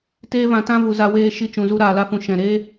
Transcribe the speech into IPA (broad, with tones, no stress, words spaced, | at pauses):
teː˦vã˧ tã˦ vu˨za˧weː˧ ʃi˧t͡ʃũ˨zu˧ ɾaː˨la˧fũ˨ ʃɛ̃˨ ɾeː˦